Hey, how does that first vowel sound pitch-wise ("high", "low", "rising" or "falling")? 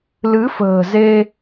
rising